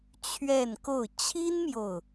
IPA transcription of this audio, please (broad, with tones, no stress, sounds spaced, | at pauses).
t͡ɕʰ ɥ ɛ˥˧ n k o˥˩ ʊ̯ t͡ɕʰ i˥ n m j o˨ ʊ̯